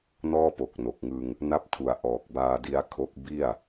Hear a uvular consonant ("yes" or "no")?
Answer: no